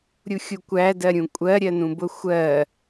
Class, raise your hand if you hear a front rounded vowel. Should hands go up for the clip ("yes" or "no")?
no